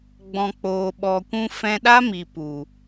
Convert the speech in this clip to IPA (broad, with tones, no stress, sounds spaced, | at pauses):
ɡ͡b ɔ̃˨ k͡p oː˨ ɓ ɔ˨ kʷ ũ˧ f ɛ̃˧ ɗ a˦ m i˨ p u˨